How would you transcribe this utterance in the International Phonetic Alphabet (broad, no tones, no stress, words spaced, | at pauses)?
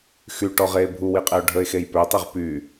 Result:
xyʈɔʁeː bʱuwiqʼeo̯ ɖʱəe̯xej pøtˤiʁ py